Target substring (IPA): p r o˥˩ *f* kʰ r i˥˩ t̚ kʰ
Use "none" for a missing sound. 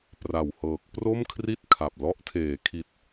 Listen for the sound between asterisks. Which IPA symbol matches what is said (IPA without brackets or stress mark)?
m